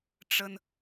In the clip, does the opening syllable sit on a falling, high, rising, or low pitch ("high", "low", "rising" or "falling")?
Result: high